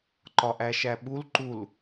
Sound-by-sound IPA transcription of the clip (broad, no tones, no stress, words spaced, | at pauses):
ǃɒʔæʃæɓul ǃul